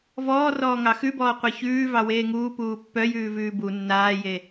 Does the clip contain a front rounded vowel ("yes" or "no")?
yes